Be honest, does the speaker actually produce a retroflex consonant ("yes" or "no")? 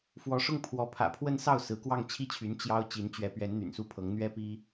yes